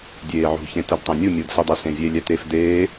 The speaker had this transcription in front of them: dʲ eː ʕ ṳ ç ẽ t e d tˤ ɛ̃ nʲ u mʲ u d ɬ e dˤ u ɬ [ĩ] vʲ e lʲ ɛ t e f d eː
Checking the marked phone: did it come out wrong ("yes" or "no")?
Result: yes